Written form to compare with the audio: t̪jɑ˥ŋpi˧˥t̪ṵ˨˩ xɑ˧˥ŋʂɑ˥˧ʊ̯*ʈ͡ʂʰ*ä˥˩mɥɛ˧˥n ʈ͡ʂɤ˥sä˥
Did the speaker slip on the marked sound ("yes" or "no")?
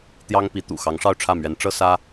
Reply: no